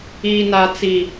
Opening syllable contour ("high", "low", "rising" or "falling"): low